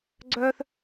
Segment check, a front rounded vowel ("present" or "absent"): present